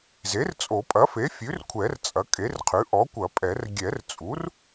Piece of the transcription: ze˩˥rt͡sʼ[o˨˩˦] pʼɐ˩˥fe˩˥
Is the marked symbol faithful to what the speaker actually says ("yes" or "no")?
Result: yes